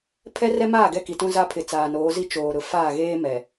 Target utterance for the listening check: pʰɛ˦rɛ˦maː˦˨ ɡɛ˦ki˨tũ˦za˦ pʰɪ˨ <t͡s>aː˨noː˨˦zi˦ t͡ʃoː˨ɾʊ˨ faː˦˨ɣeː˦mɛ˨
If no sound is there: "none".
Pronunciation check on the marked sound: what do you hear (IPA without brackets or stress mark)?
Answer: t͡s